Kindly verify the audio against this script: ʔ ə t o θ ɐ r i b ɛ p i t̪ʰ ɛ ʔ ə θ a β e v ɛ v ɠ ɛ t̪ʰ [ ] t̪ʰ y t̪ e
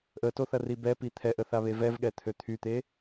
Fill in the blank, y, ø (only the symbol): ø